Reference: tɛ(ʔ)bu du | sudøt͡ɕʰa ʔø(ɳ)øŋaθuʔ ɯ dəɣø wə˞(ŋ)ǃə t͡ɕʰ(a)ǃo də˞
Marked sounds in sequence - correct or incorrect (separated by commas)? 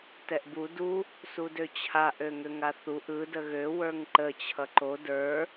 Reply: correct, incorrect, correct, incorrect